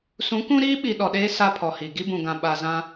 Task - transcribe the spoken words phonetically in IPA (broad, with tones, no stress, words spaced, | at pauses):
sũ˨˦kũ˦ɾiː˦ɓi˨ ɗɔ˨ɗeː˦ sa˦pʰɔ˨hi˨ ɡi˦bũ˨ɡã˨ ɓa˨zã˦